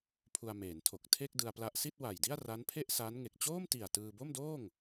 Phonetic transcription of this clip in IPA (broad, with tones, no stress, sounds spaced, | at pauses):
pʰ u˧ a̯ m eː˩˦ n tʰ o˨˩ k̚ tʰ e˥˩ k̚ d ɯ˧ a̯ p l a˦˥ ʔ s i˥˩ t̚ w a˨˩ j d i˥˩ a̯ r a˦˥ n pʰ e˥˩ ʔ s a˦˥ n ŋ e˨˩ k̚ t͡ɕ oː˥˩ m t i˨˩ a̯ t ɯː˧ b o˥˩ m d oː˥˩ ŋ